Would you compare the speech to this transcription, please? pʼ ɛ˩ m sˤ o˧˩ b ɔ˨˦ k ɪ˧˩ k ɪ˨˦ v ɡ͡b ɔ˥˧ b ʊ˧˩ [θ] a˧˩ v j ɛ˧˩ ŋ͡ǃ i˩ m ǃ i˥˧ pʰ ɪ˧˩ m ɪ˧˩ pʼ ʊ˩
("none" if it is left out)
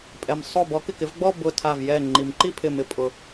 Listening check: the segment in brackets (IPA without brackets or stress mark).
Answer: tʰ